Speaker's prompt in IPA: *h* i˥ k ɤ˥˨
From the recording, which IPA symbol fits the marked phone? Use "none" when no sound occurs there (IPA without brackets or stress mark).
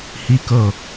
h